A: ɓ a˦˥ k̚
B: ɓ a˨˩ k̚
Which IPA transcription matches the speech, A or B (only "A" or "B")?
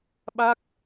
A